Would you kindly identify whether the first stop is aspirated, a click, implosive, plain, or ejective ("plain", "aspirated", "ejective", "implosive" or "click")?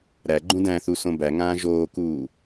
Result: click